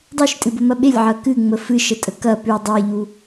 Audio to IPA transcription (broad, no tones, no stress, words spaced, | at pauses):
dˤʉʃtʼɨbəmɐ ɓelʲʕɐ kɨŋ͡mə fɨʃətʼə kɐ pʉ dˤeʎu